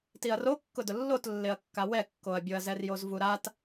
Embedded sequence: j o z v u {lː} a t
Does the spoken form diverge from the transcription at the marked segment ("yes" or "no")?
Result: yes